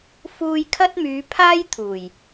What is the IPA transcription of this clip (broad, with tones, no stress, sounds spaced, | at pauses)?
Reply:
f uː˧ j kʰ ɐ˥ t̚ m yː˨˧ pʰ aː˥ j t̪ʰ uː˨˩ j